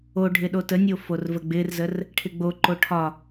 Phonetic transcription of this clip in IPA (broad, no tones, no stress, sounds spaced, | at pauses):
o ɖʱ ɪ ɗ o t ə nʲ o f o r v ə ɡ͡b ɪ r z ə r | ʈʰ ɪ ɡ͡b o ǃ o ʈʰ ɒ